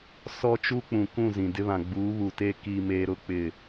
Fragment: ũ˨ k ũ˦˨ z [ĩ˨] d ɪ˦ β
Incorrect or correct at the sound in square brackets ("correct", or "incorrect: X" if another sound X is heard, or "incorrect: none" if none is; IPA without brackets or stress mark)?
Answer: correct